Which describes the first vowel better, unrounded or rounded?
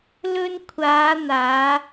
rounded